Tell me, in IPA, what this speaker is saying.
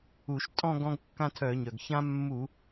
u˧˩˧ ʃ tʼ ɔ̃˥˧ ɡ ɔ̃˦˥ ɡ kː ã˥˧ tʰ œ˧˩˧ ɲ œ˩ ɡ ç ã˦˥ mː u˧˩˧

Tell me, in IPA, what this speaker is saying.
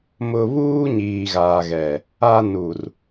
m ʊ˨ β uː˦ ɲ iː˨ ɣ aː˨ ɣ ɛ˨ | a˨ n u˨ r

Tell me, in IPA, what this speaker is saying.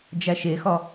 d͡ʒ æ ʃ e x ɒ

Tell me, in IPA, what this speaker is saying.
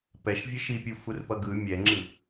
p ɛ ʃ vʲ e ʃ i pʲ u f u r p ʌ ɡ ɯ mʲ ɛ ŋ͡ǁ ɯ

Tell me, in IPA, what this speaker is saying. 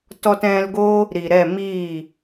t ɔ˧ t ɛ̃˧ l ɡ o˦ | ɾ i˨ ɾ ɛ˦˨ m iː˦˨

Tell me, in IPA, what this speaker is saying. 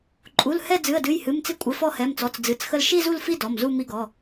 ǃʼ u˩˧˩ l h ɛ˦˨ d͡z ɨ˩˧˩ ə̯ d ɨ˩˧˩ j h ɨ˩˧˩ m t͡s ɪ˦˨ kʷʼ ɪ˩˧˩ f ɔ˦˨ h ɛ˩˧˩ m t͡s ɔ˩˧˩ t͡s d͡z ɨ˩˧˩ t͡s x ə˦˨ l ʃ i˦˨ z u˦˨ l f i˦˨ d ɔ˩˧˩ m z u˦˨ m i˦˨ ɡ ɔ˩˧˩

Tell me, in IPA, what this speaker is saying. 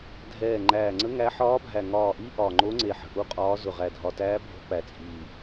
dʱ ɛː˧˩ ŋ͡ǃ æː˧˩ ŋ͡ǀ ə˧˥ ŋ æ˧˥ ħ ɒː˧˥ bʱ æ˧˩ ŋ ɒː˧˩ ʔ i˧˥ ʔ ɒː˧˩ ŋ͡ǃ o˧˥ ŋ͡ǀ e˧˩ ħ ə̤˧˩ ʔ u˧˥ qʼ ɒː˧˥ z ʊ˧˩ ʁ æ˧˩ dʱ ɒ˧˩ t æː˧˥ bʱ o̤˧˥ p æ˧˩ t͡sʼ iː˧˩

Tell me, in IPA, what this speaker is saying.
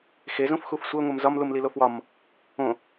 x e z õ f x u f sʷ e ŋʷ e m z ɒ m l u m l i l o f w ɒ m | õ

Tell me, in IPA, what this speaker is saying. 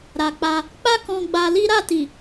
ɾ a˨ k͡p a˧ | k͡p a˦ k ɔ̃˧ ɡ͡b a˧ l i˦ ɾ a˦˨ t i˨

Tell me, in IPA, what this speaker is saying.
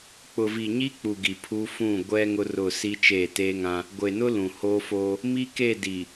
k͡p ʊ˨ v i˨ ɲ i˦ k͡p u˨ ɡ i˨ pʰ u˦ f ũ˦˨ ɡʷ ɛ˦ ŋ ʊ˦ r ʊ˦˨ s i˦ t͡ʃ eː˦˨ t eː˦ ŋ ã˦ | ɡʷ e˨ n ʊ˦ l ũ˨ h oː˦ f oː˦ | m i˦ k e˦˨ d i˨

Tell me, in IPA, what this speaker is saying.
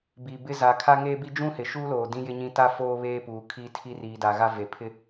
b i˨ b ɪ˦ z a˨ kʰ a˦ ŋ eː˦ b i˦ d͡ʒ ũ˦ h ɪ˨ ʃ uː˦ l oː˨ d ĩ˦ j ɪ˦ ɲ ĩ˦ t a˦ f oː˦ β eː˦ p uː˨ kʰ i˦ tʰ i˦ r iː˨ d a˨ ɣ a˦ v e˨ pʰ ɪ˦

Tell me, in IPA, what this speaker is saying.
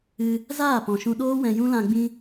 ɨ˧ | z aː˦˨ p ɔ̃˨ ʃ ũ˧ ɗ oː˦ w ɛ̃˧ j ũ˦ l ã˧ ɡ͡b ĩ˧

